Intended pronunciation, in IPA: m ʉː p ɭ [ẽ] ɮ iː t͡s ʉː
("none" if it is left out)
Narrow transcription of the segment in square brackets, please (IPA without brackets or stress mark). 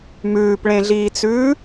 ẽ